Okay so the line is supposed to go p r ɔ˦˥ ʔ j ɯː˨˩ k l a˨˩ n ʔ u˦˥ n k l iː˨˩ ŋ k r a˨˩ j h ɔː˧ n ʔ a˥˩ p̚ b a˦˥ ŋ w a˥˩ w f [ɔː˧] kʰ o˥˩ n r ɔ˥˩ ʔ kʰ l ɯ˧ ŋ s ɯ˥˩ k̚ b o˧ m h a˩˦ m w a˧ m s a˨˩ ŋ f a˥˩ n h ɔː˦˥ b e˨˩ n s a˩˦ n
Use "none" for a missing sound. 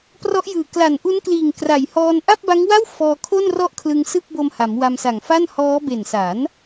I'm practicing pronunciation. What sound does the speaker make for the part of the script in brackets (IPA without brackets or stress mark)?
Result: ɔː˧